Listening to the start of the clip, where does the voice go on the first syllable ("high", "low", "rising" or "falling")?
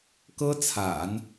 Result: high